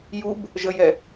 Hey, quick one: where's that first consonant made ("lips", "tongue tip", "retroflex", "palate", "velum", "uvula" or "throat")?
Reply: palate